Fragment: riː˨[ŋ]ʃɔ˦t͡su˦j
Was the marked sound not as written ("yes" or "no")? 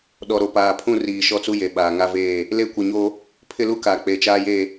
yes